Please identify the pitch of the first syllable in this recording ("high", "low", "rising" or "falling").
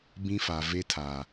high